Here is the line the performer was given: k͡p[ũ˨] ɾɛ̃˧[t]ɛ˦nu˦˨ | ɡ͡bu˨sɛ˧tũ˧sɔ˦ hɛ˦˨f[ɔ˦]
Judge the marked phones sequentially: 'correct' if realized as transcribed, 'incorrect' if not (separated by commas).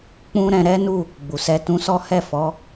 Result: incorrect, incorrect, incorrect